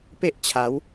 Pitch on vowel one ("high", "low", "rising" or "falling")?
high